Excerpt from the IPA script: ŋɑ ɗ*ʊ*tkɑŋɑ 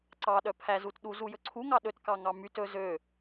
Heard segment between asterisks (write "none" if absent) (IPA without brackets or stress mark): ɵ